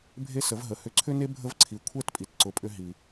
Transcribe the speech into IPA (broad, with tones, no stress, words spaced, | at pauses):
bʱe˥sə˩˥vɦə˩˥hʏ˧ ǀʰʏ˥ne˥ bʱə˥vǀʰi˩˥ kʷʰɛ˥˩tpʼi˩tǀʊ˩˥pʼʏ˧ ɦi˩